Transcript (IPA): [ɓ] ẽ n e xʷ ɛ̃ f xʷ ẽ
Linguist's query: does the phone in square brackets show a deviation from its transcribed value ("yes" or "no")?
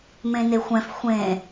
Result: yes